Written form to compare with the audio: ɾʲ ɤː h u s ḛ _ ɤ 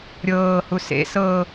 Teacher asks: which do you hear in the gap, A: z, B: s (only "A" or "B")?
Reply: B